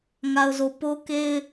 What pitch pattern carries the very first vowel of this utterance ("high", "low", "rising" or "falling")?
low